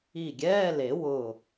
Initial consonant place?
velar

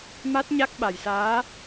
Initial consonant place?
labial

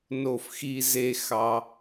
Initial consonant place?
alveolar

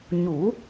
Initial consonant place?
palatal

